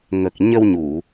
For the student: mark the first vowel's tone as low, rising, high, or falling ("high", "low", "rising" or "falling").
low